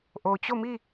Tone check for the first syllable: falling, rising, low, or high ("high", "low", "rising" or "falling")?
low